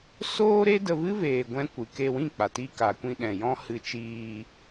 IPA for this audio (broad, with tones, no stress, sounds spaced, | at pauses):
s oː˦ ɾ e˦ d ə˧ v ɨ˦ v eː˧ ɡʷ ɛ̃˦ kʷ ɨ˨ k e˧ w ĩ˦˨ k͡p a˨ t i˧ k a˨ kʷ ĩ˧ ɗ ɛ̃˨ j ɔ̃˦ h ɨ˧ t͡ʃ iː˧